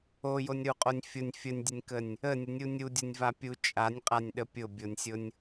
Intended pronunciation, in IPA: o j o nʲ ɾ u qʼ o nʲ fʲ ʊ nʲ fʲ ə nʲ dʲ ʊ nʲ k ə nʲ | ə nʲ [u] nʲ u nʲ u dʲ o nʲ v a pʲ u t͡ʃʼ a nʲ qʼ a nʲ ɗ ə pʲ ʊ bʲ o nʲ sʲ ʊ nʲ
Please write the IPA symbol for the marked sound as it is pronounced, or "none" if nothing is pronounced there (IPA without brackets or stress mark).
ʊ